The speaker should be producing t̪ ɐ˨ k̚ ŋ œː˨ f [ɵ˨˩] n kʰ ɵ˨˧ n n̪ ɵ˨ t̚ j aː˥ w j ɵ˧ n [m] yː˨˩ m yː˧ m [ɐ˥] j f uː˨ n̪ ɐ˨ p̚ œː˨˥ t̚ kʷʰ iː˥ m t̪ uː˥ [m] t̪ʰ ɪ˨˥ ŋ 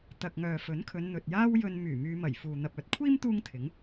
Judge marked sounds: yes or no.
no, yes, no, no

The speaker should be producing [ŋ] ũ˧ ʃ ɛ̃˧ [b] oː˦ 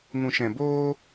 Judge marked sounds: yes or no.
yes, yes

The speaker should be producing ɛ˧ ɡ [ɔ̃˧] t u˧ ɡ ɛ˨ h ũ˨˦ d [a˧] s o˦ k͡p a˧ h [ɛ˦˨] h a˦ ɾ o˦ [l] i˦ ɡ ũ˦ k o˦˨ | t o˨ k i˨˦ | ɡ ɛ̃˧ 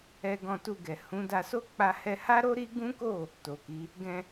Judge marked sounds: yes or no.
yes, yes, no, no

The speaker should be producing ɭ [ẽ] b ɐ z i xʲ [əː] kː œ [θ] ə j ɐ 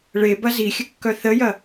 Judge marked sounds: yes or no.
no, no, yes

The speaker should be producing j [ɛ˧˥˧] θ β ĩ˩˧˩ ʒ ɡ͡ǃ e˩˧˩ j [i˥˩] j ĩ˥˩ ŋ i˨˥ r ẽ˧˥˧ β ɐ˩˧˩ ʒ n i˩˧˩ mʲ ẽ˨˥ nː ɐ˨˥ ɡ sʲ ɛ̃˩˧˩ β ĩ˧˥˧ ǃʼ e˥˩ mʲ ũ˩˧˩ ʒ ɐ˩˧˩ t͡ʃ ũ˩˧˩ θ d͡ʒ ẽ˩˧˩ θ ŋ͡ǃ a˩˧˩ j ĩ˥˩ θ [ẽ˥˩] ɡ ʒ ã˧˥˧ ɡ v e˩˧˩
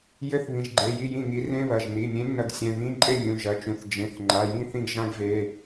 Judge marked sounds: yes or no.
no, yes, no

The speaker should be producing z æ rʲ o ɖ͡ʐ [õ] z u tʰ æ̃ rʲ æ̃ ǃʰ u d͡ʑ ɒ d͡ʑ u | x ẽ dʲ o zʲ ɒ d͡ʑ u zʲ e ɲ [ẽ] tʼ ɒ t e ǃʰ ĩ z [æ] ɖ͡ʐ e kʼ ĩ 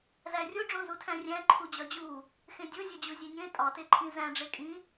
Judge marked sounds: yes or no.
yes, yes, no

